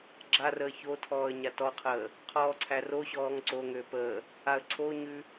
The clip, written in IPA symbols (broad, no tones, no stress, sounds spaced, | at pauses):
ɡ͡ǁ a r əː ç o tʰ ɔː ə̯ ɲ a t ɔ qʰ əː | qʰ ɔː ǀʰ æ r o ɕ ɔː ŋ ǀ o ŋ ø p ə | a ə̯ ǀʰ o ɲ ʉ